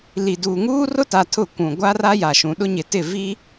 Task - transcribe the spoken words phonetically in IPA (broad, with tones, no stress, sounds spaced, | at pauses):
l i˨ d uː˨ ŋ uː˦ r ʊ˦ t a˨ tʰ ʊ˦˨ kʷ ũ˨ ɡʷ a˦ r a˦ j a˨ ʃ ũ˨ ɗ ʊ˦ ɲ ɪ˨ t ɪ˦˨ v i˦